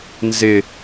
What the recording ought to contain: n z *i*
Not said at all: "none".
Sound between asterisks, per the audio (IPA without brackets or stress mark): ɪ